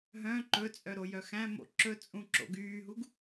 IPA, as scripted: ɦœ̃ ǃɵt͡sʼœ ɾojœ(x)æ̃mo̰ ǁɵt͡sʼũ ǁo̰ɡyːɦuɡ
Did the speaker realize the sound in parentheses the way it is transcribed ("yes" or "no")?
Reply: yes